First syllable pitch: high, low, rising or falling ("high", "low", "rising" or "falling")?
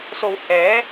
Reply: low